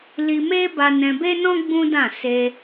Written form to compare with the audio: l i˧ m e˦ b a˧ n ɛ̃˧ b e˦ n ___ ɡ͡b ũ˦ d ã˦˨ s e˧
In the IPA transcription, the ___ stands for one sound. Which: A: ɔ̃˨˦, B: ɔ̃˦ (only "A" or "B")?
B